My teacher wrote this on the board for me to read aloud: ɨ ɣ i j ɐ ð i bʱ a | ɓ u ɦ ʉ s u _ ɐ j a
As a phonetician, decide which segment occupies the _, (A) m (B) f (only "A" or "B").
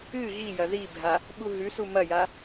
A